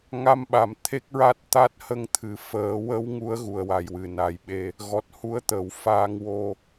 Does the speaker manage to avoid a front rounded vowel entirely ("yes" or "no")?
yes